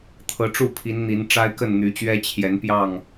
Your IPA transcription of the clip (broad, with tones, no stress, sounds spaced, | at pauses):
t̪ʰ ɤ˨˦ ʈ͡ʂ u˥˨ pʰ i˨˦ n n̪ i˨˦ n ʈ͡ʂ a˦ ɪ̯ k ə˥˨ n n̪ y˨˦ t͡ɕ ɥ ɛ˦ t͡ɕʰ j ɛ˨˦ n p j ɑ˥˨ ŋ